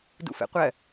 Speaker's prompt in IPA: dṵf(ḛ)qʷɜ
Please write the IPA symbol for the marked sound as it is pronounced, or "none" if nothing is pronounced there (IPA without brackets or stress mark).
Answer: ɛ̰